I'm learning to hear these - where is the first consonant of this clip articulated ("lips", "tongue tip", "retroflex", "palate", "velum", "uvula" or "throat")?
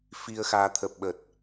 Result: lips